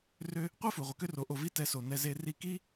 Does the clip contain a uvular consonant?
yes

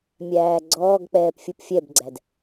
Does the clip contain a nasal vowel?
no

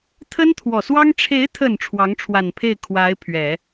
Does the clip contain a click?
no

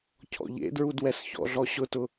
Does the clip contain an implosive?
no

